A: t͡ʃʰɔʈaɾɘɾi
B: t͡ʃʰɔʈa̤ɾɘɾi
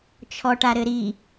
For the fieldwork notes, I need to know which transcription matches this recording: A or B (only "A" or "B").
A